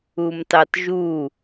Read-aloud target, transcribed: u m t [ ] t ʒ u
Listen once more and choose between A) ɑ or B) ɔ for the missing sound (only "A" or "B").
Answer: A